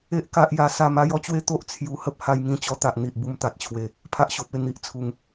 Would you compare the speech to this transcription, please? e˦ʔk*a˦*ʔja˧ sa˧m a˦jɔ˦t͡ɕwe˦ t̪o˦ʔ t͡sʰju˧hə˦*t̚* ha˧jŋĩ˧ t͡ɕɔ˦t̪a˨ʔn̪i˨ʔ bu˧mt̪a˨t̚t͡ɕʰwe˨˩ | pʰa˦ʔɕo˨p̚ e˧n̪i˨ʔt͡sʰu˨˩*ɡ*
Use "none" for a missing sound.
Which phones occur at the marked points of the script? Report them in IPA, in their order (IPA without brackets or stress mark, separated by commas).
a˦, p̚, ŋ